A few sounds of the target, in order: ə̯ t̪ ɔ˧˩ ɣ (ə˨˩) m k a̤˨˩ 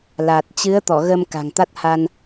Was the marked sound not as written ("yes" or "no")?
yes